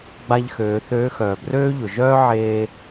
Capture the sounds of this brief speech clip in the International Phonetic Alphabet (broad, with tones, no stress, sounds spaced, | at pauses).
ɡ͡b a˧ ʎ x øː˩˧ θ øː˧˥ x œː˩ b r øː˥ ʎ ʊ˩ ʒ œː˥ ʕ eː˧